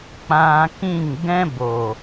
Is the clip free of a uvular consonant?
yes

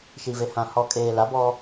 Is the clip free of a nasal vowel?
no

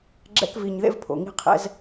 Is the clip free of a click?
no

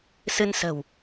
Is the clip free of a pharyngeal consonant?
yes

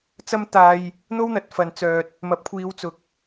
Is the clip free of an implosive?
yes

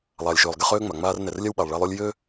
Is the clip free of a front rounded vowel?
no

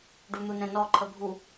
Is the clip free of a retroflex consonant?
no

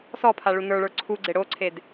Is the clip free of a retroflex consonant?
no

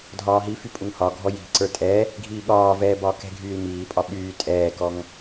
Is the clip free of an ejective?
no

